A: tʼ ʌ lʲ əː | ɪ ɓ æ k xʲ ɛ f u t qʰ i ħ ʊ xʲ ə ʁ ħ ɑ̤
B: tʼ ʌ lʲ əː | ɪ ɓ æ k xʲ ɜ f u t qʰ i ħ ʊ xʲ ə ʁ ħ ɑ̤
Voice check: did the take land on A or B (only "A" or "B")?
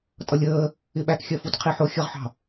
B